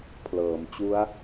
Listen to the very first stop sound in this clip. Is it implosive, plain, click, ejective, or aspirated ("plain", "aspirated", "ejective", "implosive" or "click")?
aspirated